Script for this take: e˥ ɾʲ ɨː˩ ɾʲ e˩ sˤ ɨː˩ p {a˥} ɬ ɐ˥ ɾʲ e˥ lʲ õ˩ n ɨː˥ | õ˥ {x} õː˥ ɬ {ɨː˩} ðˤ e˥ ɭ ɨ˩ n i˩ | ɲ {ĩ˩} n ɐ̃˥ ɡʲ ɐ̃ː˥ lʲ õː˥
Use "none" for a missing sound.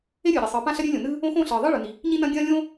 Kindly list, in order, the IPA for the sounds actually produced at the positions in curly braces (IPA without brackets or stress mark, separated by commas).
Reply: ã˥, x, ɨː˩, ĩ˥